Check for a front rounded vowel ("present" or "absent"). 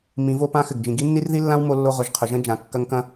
absent